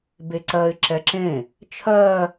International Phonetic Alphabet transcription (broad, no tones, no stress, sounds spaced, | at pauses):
b e ǀ ɜ ɪ̯ ǁ ɛ ǁ ẽ | t͡ʃʰ ɜ